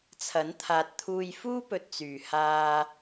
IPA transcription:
t͡sʰ ɐ˨˥ n t̪ʰ aː˨ t̚ t̪ʰ uː˧ j f uː˥ p ɵ˨ t̚ t͡s yː˨˩ h aː˧

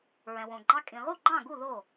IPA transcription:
ɹ ɛ̃˩ w õ˩ ɡ͡ǃ ɑ˦ kʼ ĩ˩ ʁ u˥˩ ɡ͡ǃ ɑ̃˥˩ ɡ u˥˩ ð o˥˩

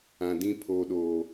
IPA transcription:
ã˨ d ĩ˦ pʰ oː˨ ɗ oː˨

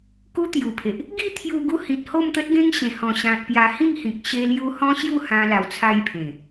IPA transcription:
k u˦ t̪ j u˨˩ pʰ e˨ ʔ | ɡ i˥˧ t̪ʰ j u˧ ɡ u˧ h ĩ˨ t̚ h o˥˧ m t̪ ə˦ t̚ ɡ ẽ˦ ŋ ɕ ẽ˨˩ h ɔ̃˨˩ ɕ ã˨ t̚ p j a˧ h ĩ˥˧ ŋ h ĩ˨ k̚ ɕ e˧ l j u˧ h ɔ̃˦ ɕ j u˥˧ h ã˧ l a˨˩ w t͡sʰ a˧ j pʰ ẽ˨˩

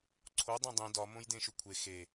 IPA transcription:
ǀʰ o dˤ ĩ dˤ ĩ d ɒ m õ j d ẽ ʃ u kʷʰ e x e

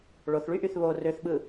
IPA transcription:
ɭ o θ ɭ y ʔ y θ β o r ø θ ɓ ɯ

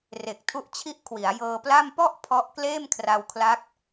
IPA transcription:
r e˨˩ k̚ tʰ u˦˥ ʔ t͡ɕʰ i˥˩ ʔ kʰ w i˩˦ a̯ j ɤː˧ p l a˥˩ m p ɔ˥˩ ʔ pʰ ɔ˦˥ ʔ k l eː˥˩ m kʰ r a˧ w kʰ l a˦˥ k̚

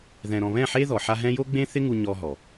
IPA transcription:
ð ɛ̃˨ ɾ ɔ̃˨ β ɛ̃˦˨ ħ e˦ ð ɔ˨ ħ a˦ ɦ ɛ̃˦ j o˦ ɡ͡b ẽ˦ θ ɪ˦ ŋ u˧ ɲ ɔ˦ ɦ ɔ˨

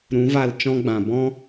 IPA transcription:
ɾ ũ˨˦ v a˦˨ l t͡ʃ ɔ̃˦ ɡ͡b ã˨ b ɔ̃˦

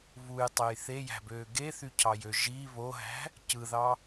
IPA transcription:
β u j tˤ e j θ e j æ̤ b øː ɡ e θ y cʰ ɑ j ø ʒ i β o ɦ æ̤ | c ɯ ð ɑ

